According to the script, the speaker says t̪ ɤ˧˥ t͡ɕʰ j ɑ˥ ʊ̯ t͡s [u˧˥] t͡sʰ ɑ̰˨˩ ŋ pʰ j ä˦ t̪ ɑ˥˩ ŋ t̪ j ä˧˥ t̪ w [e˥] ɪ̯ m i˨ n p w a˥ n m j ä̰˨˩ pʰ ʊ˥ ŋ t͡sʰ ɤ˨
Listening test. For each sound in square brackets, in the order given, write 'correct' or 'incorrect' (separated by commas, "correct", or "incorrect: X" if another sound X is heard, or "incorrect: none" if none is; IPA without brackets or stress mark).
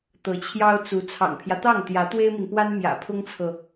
correct, correct